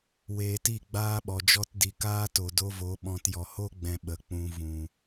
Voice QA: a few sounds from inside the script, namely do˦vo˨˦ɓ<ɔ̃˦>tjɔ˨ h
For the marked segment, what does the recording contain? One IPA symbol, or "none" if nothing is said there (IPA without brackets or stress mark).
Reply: ɔ̃˧